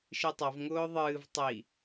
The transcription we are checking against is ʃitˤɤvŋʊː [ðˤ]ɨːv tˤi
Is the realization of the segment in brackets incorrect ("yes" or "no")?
no